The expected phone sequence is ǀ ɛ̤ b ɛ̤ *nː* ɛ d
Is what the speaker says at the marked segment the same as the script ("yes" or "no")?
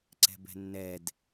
yes